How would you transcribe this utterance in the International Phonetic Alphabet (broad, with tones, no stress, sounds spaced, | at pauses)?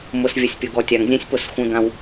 m ʊ˨ s vʲ ə˨ sʲ pʲ ʊ˨ ɡ ɔ˨ tʲ a˨ ŋ zʲ ɛ̃˦ sʲ p ʊ˦˨ s xʷ ɛ̃˦ ɡ ã˦ w